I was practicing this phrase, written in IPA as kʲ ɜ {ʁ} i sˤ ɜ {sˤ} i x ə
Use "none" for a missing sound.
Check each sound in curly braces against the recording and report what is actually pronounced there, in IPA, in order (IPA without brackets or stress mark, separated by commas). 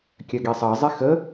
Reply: ɡ, zˤ